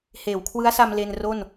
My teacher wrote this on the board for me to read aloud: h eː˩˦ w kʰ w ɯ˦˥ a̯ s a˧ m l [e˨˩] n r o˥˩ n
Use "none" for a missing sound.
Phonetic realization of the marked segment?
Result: e˧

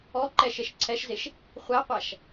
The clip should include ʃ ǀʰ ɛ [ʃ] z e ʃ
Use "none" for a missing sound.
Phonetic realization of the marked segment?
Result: ʃ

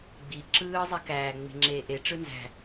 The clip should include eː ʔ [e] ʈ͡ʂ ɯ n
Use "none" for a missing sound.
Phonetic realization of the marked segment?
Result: e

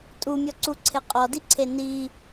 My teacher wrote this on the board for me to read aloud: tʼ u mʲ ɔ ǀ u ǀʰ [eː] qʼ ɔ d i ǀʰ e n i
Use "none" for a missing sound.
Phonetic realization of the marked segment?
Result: e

